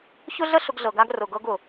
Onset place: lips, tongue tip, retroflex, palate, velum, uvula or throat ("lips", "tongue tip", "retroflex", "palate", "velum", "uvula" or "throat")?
palate